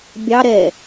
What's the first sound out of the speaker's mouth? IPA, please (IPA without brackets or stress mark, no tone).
bʲ